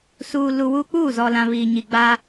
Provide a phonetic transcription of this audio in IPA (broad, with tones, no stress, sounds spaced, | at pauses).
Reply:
s uː˨ l u˨ w u˦ k͡p uː˦˨ z ɔ˨ l ã˨ β iː˨ ɲ i˨ ɡ͡b aː˦